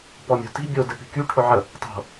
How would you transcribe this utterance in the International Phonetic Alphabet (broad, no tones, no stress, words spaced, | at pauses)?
pɔmʲo̤ti̤ bʲo dɨpi̤ky ʈʰʊʕə | tˤo̤